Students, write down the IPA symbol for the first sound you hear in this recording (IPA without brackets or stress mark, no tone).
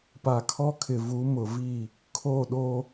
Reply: p